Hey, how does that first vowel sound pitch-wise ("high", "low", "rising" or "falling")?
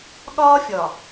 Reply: high